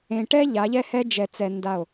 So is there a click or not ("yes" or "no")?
no